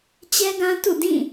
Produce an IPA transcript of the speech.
t͡ɕ ɛ˦ ɡ ã˦ t ṵ˦˨ d ĩ˦˨

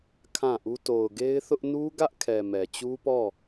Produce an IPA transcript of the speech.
kʰ ã˦˨ ʔ u˦ t o˨ ʊ̯ ɡ e˦ ɪ̯ θ ʊ˦ ʔ n u˦ ɡ ä˦ ʔ kʰ ɛ˨ m ɛ˨ t͡ɕ u˦ p ɔ˦˨

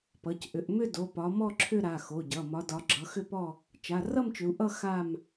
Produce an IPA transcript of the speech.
p ʌ˩˧˩ c ʔ ʏ˨˦ ʔ m ʏ˥˧ d o˩˧˩ p ɒ˨˦ m ɔ˥˧ ǁʰ ʏ˥˧ ɾ a˩˧˩ x o˩˧˩ ɟ ʌ˩˧˩ m ɒ˨˦ d ɒ˨˦ ɡ͡ǁ ʌ˨˦ x ʏ˥˧ p ɔ˥˧ | t͡ʃ a˩˧˩ r ʌ˥˧ m t͡ʃ ʏ˨˦ u̯ ʔ ʌ˥˧ x a˥˧ m

